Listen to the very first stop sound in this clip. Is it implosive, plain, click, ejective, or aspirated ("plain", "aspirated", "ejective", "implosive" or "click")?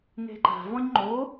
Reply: click